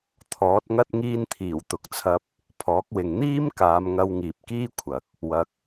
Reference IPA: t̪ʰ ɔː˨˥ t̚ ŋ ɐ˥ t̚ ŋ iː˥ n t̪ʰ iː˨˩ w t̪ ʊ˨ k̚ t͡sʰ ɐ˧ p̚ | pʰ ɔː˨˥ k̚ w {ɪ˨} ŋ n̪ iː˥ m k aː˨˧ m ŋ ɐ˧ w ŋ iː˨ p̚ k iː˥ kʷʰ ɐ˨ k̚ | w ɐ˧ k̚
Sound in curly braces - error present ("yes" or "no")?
no